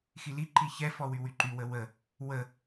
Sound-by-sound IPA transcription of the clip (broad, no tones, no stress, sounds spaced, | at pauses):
x i l i ǃ i ç ɛ f ɔ w y w y ǃ y w ə w ə | w ə